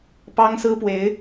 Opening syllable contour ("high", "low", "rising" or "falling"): high